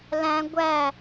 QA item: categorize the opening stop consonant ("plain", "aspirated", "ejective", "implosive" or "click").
plain